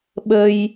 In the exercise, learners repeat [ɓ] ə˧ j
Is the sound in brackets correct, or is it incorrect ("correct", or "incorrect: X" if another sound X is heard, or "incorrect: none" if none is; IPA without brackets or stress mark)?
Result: correct